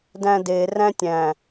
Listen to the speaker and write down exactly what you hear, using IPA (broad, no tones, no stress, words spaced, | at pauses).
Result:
dæ̃de ræ̃tʲæ̃